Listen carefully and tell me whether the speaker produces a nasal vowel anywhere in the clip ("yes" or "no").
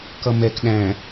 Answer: yes